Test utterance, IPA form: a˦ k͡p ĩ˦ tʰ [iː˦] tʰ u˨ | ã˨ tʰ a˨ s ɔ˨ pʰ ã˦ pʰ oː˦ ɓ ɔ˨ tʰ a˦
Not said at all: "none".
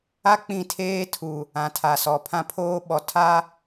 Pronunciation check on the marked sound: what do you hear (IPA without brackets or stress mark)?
eː˦